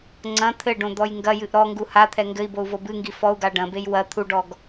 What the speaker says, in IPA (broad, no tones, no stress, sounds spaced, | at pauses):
ŋ͡ǀ ɐ̃ t̪ʰ ɘ ɖ õ d̪ ɔ j ŋ ɡ ɐ j ɨ ʔ ɾ ɔ ŋ ɡ u h a t̪ʰ ɛ ŋ ɡ ɘ i̯ b o u̯ v o b ɨ ŋ ɡ i f ɔ u̯ ɡ a ɖ ɐ̃ b e j w ɐ t̪ʰ u ɖ ɔ ɡ